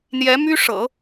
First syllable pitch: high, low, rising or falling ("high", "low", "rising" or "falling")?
rising